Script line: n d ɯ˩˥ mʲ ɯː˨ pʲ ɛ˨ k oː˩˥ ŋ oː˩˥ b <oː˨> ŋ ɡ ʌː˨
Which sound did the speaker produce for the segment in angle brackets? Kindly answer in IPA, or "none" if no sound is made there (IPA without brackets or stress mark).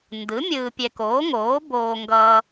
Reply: oː˨